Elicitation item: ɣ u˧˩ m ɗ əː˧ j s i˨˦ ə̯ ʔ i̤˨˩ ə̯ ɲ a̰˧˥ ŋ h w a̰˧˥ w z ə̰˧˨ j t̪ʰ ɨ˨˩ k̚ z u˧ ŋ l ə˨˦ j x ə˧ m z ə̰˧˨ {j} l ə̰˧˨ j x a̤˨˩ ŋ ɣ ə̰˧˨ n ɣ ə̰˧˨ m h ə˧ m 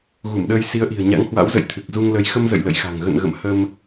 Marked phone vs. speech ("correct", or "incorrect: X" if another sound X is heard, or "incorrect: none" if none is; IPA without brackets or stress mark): correct